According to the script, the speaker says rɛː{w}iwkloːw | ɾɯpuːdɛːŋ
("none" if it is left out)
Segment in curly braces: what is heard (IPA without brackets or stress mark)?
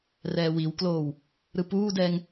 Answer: w